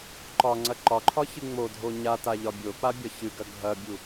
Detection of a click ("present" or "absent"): present